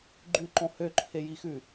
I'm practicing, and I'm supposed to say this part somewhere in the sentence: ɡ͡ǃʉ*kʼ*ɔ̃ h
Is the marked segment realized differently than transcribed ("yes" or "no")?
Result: yes